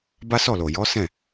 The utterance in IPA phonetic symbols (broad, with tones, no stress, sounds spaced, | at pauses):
b a˦ s ɔ˦˨ l o˨ j ɔ˨˦ s ɛ̃˦˨